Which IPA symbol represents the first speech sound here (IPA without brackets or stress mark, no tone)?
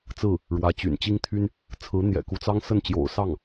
t͡s